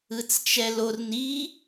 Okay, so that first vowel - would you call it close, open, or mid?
close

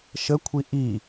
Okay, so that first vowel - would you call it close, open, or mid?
mid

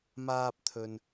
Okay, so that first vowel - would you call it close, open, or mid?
open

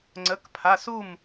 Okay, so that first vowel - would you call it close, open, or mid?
mid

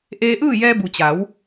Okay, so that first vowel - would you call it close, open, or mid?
mid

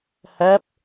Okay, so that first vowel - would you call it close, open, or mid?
mid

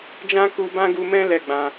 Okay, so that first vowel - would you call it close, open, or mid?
open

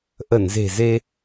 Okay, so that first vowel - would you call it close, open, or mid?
mid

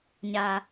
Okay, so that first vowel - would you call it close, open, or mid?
open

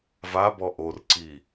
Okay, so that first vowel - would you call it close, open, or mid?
open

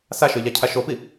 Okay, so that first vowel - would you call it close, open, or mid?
open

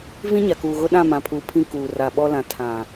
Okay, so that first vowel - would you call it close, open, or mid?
close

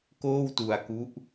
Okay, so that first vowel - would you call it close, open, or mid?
mid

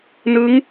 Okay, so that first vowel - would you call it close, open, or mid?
close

